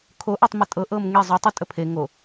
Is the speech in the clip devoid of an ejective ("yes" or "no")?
no